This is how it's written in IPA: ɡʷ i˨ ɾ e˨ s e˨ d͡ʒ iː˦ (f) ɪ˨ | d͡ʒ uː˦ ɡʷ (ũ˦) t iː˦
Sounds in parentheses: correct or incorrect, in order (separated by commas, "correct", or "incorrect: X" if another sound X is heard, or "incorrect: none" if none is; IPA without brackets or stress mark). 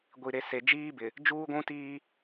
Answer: incorrect: b, correct